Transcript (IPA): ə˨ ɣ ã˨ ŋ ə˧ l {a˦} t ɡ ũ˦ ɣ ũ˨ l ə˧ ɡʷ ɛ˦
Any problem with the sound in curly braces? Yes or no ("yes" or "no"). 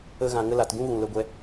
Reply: yes